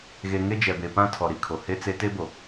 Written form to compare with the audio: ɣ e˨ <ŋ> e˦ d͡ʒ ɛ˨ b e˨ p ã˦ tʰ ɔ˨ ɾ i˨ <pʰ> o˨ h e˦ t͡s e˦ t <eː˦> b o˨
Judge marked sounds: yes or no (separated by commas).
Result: yes, no, no